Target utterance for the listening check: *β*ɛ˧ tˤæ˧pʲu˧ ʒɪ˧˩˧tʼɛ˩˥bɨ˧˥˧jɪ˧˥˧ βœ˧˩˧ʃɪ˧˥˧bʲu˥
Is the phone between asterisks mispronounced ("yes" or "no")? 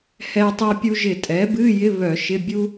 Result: yes